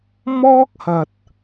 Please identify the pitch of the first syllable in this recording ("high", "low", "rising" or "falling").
high